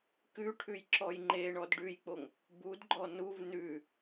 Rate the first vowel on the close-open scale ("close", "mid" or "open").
close